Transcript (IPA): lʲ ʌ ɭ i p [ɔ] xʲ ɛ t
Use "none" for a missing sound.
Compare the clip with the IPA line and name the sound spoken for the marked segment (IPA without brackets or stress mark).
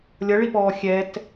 ɔː